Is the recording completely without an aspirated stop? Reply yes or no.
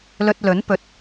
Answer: yes